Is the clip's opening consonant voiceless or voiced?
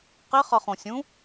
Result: voiceless